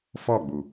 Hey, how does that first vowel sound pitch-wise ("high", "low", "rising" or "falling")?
falling